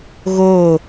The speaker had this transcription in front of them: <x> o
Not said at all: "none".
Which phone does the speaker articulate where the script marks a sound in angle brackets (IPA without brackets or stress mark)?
ɣ